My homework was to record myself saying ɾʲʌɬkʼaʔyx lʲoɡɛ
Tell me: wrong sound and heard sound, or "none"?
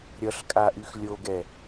none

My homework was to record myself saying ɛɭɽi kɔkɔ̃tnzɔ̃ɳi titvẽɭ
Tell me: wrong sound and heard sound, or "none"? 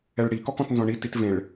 none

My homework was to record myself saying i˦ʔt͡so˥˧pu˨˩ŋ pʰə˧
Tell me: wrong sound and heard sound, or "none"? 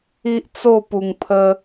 none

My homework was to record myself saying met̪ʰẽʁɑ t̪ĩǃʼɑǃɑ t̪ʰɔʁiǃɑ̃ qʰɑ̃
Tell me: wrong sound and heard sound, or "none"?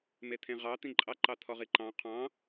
none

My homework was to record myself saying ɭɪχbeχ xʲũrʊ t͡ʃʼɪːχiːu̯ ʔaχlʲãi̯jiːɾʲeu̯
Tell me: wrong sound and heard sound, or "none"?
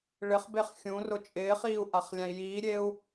none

